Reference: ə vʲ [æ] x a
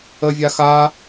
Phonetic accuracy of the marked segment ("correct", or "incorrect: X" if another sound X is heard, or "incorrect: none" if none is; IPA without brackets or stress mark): incorrect: a